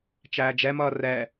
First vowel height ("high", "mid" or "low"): low